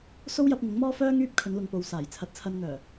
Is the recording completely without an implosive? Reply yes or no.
yes